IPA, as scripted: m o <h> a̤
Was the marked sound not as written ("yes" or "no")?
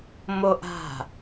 yes